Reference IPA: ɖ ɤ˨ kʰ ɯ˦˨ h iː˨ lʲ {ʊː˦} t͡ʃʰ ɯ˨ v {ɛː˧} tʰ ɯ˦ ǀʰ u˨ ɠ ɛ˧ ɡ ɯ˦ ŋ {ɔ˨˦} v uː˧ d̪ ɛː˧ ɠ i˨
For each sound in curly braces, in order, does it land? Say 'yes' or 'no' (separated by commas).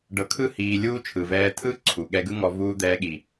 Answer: no, yes, no